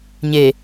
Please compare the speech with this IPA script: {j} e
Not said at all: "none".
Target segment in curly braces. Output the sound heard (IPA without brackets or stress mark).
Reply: ɲ